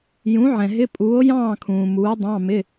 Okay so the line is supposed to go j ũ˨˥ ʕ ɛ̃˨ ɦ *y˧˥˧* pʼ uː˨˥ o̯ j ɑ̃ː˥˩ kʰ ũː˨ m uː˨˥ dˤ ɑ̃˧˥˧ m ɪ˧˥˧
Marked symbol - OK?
no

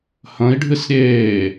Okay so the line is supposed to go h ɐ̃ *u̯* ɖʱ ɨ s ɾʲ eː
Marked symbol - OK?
no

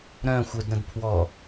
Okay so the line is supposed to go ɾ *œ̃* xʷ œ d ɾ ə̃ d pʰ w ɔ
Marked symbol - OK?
yes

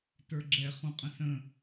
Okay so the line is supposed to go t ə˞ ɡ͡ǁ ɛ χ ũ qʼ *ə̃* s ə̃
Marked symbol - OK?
yes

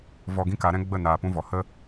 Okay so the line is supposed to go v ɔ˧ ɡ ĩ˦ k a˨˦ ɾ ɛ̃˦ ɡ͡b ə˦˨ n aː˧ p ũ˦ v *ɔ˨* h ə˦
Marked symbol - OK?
yes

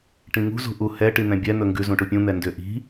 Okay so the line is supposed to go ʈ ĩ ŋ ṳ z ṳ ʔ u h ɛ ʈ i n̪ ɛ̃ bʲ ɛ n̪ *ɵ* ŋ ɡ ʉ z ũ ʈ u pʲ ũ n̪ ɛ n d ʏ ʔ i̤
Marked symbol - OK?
yes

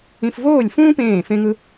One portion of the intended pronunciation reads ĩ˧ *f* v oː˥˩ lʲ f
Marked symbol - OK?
yes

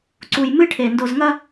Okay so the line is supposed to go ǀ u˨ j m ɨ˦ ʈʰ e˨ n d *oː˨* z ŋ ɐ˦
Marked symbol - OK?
no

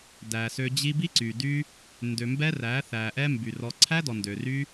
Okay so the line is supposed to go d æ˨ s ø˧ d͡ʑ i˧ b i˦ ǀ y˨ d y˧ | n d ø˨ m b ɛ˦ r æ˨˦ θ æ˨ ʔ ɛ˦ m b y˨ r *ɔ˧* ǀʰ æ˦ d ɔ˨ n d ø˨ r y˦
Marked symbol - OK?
yes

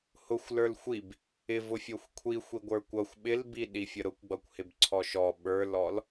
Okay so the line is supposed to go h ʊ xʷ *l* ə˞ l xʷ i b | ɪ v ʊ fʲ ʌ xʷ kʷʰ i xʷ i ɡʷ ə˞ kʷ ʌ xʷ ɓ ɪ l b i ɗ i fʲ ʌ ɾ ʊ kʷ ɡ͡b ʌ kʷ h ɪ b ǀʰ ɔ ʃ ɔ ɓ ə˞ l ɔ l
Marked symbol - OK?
yes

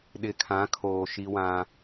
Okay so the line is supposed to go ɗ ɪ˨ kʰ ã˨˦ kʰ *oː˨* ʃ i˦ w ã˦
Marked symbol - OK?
yes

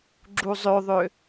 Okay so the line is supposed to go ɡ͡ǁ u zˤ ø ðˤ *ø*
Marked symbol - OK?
yes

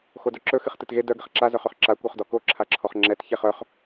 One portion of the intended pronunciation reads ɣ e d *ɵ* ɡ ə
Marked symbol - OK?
no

